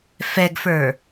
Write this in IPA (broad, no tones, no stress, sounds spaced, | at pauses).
f ɛ ɡ f ə˞